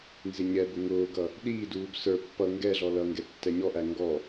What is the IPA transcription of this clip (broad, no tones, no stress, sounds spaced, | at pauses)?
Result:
n z ɪ ɲ ɛ b ʊ ŋ ʊː ɡ ʌ | ɗ iː d uː b s ə˞ pː ʌ ŋ ɡ ɛ ɮ ɔ l ʌ ŋ ɡ ɛ tː ɛ ɲ ɔ ʔ æ ŋ ɡ ɔ